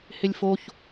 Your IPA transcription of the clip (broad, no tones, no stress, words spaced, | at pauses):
hɪlʲfoç